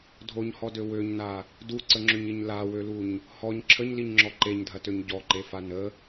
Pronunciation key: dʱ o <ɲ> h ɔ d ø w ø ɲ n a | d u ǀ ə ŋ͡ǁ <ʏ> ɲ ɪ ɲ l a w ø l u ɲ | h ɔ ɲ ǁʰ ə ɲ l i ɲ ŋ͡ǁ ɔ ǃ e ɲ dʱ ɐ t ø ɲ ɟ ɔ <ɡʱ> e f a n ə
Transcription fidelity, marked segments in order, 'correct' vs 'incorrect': correct, correct, incorrect

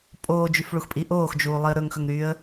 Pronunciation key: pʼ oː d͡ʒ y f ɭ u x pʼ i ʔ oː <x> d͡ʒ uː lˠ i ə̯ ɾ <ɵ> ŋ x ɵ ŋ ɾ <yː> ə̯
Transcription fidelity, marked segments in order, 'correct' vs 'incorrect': correct, correct, correct

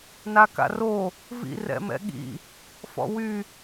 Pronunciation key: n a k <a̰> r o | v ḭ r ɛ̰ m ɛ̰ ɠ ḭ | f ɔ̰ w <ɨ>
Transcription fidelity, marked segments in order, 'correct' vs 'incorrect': correct, incorrect

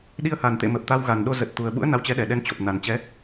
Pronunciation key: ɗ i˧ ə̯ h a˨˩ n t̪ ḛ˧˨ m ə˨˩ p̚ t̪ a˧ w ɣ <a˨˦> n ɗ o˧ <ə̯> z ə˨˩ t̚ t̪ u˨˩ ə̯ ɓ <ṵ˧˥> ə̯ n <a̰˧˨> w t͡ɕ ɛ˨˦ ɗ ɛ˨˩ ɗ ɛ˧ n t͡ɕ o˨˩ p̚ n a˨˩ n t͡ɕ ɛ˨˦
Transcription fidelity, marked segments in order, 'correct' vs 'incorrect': incorrect, incorrect, correct, incorrect

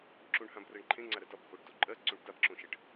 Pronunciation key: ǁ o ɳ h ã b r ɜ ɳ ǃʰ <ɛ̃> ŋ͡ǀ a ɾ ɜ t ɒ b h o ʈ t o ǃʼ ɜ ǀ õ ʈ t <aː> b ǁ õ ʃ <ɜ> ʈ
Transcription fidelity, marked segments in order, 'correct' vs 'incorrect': incorrect, incorrect, correct

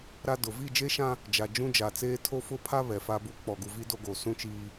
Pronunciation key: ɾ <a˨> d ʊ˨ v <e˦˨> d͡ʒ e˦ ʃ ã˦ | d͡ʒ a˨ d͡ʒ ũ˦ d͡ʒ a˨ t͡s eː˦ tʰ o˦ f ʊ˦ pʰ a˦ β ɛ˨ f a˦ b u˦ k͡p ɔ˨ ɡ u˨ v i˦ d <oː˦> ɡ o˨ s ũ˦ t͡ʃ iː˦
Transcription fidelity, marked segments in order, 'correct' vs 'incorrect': incorrect, incorrect, incorrect

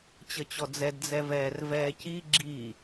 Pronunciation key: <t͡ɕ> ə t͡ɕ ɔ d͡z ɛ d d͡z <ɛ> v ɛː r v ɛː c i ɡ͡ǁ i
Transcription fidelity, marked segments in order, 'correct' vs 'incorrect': correct, correct

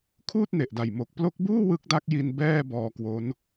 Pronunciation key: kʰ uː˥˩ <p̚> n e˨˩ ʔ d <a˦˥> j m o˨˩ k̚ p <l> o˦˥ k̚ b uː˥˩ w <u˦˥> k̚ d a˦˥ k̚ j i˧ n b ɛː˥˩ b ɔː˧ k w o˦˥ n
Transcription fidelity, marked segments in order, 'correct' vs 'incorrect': incorrect, incorrect, correct, incorrect

